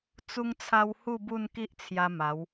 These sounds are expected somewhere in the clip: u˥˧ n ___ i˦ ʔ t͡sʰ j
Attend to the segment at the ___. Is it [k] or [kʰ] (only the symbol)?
k